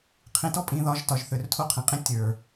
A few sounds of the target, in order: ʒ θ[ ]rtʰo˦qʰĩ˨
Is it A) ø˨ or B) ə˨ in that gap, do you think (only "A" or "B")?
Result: A